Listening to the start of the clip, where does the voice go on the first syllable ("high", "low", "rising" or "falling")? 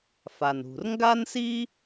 low